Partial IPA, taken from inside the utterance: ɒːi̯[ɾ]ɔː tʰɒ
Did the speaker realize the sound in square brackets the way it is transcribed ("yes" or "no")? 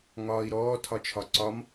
yes